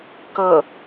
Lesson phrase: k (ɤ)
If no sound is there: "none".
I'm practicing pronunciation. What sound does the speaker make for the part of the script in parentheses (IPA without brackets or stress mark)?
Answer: ɤ